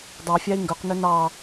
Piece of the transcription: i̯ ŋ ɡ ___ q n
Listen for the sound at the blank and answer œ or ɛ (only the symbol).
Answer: œ